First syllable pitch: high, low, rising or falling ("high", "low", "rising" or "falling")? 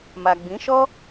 low